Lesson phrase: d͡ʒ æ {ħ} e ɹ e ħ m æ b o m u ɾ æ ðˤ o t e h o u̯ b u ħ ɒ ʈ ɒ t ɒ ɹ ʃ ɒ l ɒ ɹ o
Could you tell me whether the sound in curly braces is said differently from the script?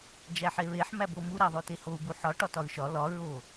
no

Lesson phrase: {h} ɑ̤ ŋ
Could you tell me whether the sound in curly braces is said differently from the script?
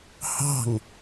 no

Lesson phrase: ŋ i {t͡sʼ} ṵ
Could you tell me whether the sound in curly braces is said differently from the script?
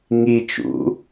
yes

